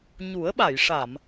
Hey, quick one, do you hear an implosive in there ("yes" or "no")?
yes